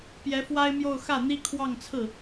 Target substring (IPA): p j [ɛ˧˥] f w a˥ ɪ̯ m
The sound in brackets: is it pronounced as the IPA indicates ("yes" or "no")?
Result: yes